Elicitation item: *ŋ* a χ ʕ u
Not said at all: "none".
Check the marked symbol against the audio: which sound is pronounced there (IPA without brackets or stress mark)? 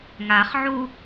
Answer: ŋ